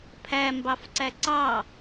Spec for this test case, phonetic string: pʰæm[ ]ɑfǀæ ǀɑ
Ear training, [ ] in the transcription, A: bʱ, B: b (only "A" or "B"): B